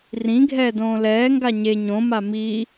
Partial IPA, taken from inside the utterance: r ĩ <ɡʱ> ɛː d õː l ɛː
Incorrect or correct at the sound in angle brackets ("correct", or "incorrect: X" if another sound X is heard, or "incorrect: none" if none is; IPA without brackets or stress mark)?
correct